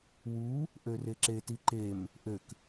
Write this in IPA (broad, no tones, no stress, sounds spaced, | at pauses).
w u | ʔ ø r e ǁ e t i ǃ e m | ʔ ø k